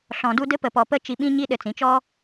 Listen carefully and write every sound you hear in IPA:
ɬɔ̃˨du˧ dɘ˧pə˨pɔ˨pə˧ t͡ʃi˧ɓĩ˦ ɲi˦ɗɘ˧t͡sĩ˨˦t͡ʃɔ˦

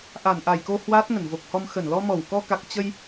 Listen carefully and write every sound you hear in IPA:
ʔa˧˩nʔa˧˩jko˧ hwaː˦˥t̚ŋə˧˩nvo˨˩k̚hɔ˧m xə˧˩nlɔ˧mɔ˧˩w kɔ˧ka˨˩k̚ t͡ɕə˧j

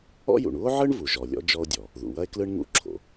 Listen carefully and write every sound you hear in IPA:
ɔ̰˥jṵ˩ɳ u˥o̯ʕɯ˥ɳ vu˩ʒɔ˩lʲɔ̰˥ d͡ʒɔ˥o̯dʲɔ˩ | ðṵ˩wɐ˥e̯ klɯ˥ɳ ŋṵ˥ ǁʰo̰˩

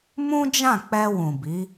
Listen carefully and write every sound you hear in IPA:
mũ˦d͡ʒã˦˨ k͡pɛ˧ wũ˨bi˨˦

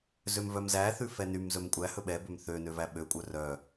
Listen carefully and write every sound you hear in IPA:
zømvœmzæ θʉfɛnym zɵmkʷʼæhɵ ɓɛbøm θønøvæ ɓøkʷʼœ rœ

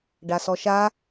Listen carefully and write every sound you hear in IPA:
ɖasɔʃa

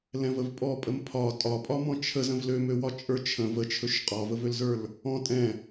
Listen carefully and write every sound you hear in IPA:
lɛ̃vəvpʼɔ pʼəmpʰɒ tʼɒpʼɒmɔ̃ t͡ʃʰə zə̃vlømøwɒ t͡ʃʼə˞t͡ʃʰə̃v ət͡ʃʰɵʃ qʼɒvəvølzə˞l | ɔ̃ tʼɛ̃

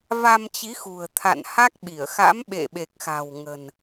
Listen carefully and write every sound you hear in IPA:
va˧mt͡ɕi˨˦xṳ˨˩ə̯t̪ʰa̰˧˨n ha˦˥k̚ɓi˧˩ə̯ xa̰˧˥m ɓḛ˧˨ɓe˨˩k̚xa̤˨˩w ŋə̤˨˩n

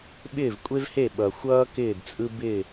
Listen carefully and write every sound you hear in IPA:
ɓɪː˥˨vkʷʼe˥vhe˥˨ ɓʌ˨xʷʌː˥ kɪː˥˨dt͡sʼɯ˥ bɪ˥˨

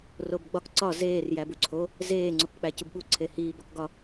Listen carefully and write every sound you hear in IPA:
robɡ͡bɒk ǀɒ zeːr jæbuǀʰo | zeː ŋ͡ǀokk͡pæcubɓu ǀʰehiː bɒkɡɒ

